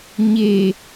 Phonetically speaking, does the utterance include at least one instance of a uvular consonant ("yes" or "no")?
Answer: no